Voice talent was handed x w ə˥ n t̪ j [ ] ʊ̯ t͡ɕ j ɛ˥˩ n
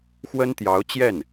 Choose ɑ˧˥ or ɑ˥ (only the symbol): ɑ˧˥